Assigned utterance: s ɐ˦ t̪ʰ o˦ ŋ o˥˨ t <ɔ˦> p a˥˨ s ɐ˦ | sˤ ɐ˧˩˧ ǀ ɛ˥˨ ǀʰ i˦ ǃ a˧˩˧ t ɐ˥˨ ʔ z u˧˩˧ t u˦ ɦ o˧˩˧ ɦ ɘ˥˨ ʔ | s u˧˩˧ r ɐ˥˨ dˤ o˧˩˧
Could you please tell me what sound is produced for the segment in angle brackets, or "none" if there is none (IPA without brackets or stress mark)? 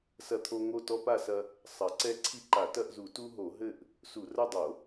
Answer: ɔ˦